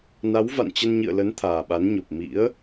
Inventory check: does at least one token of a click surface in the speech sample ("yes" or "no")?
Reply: no